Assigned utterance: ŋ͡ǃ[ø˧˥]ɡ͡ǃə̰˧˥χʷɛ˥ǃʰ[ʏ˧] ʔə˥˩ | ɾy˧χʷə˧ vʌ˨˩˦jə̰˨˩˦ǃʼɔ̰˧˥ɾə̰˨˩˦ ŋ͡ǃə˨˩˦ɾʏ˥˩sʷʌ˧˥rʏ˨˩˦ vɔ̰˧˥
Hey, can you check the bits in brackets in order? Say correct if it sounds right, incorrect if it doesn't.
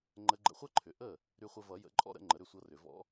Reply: incorrect, incorrect

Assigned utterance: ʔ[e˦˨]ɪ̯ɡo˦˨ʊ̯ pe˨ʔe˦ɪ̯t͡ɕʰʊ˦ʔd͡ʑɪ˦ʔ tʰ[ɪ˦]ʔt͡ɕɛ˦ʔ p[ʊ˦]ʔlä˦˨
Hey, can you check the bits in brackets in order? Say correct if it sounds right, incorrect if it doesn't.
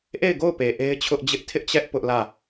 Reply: correct, correct, correct

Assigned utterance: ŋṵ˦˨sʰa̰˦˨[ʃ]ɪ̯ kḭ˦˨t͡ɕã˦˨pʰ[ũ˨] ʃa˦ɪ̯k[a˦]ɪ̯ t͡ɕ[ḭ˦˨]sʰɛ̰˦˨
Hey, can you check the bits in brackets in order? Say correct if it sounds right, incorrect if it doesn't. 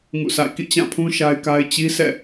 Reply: incorrect, incorrect, correct, incorrect

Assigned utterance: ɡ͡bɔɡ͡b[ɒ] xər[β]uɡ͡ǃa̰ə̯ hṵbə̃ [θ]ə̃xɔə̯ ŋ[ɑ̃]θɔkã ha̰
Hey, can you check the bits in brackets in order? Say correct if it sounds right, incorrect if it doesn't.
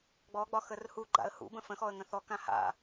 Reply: correct, incorrect, incorrect, incorrect

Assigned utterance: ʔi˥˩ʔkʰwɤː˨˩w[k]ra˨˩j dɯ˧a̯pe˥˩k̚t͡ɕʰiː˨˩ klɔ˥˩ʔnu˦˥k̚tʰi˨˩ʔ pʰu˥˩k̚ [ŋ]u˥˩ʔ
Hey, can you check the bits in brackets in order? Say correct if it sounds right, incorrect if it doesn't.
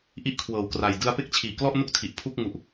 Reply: correct, correct

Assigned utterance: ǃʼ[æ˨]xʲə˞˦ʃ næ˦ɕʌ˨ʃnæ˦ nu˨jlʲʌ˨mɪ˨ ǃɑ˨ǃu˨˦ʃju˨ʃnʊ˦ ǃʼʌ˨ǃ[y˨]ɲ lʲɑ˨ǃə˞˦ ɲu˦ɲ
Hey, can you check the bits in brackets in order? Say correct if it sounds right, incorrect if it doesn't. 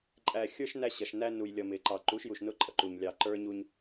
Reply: correct, incorrect

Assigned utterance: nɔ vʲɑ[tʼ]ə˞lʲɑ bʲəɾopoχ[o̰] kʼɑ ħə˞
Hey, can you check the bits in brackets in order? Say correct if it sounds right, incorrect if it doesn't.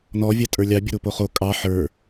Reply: correct, incorrect

